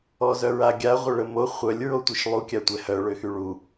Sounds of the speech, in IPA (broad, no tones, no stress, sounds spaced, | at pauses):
ɔ z œ ɹ a ɡʲ a ʁʷ ə ɭ ə m o χʷ œ lʲ ɹ o tʷ i ʃ lˠ u kʲ a tʷ ɛ h œ ɭ ø x y ɭ u